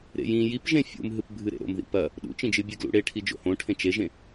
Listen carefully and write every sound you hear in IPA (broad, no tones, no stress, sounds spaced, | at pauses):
ɾ ḛ j ĩ j i p ʒ ẽ fʲ ṵ m ɦ ɨ p bʱ ɨ ɾ ḛ ɾ o̰ m ð ḭ p ɐ | ɗ ṵ t͡ʃ ĩ d͡ʒ ɨ bʲ e ɡ l ṵ ɽ e ʈʰ i d͡ʒ o̰ h õ ʈʰ ẽ t͡ʃ e ʒ ẽ